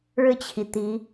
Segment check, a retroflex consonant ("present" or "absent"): present